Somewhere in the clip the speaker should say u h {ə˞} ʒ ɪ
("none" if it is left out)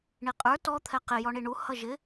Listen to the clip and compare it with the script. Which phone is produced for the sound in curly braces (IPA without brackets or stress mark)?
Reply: ʌ